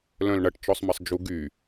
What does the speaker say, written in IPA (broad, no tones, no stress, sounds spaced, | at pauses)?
l œ̃ l ɳ ɐ ʈ t͡ʃ ɔ sˤ m ɐ sˤ d͡ʒ u ɡ y